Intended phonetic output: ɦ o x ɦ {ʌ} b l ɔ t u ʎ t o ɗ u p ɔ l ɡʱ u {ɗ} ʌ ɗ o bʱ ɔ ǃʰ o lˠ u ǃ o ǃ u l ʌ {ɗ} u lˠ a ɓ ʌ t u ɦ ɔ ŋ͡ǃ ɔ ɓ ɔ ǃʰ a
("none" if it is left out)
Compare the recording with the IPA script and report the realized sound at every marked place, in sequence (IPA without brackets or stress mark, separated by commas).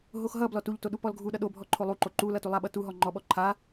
ʌ, ɗ, t